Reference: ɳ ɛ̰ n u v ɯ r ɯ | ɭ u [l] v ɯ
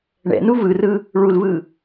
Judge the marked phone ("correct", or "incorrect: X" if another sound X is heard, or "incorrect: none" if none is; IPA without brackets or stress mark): correct